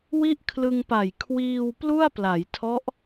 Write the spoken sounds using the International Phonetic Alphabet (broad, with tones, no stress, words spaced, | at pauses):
wi˥˩ʔkʰlɯ˧ŋpa˨˩j kʰwiː˧wplu˥˩a̯pla˩˦jtʰɔ˦˥ʔ